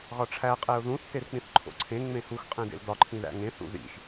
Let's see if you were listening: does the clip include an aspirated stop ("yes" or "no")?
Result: yes